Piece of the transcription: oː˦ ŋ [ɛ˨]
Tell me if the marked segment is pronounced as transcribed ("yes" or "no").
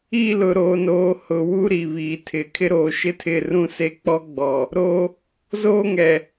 yes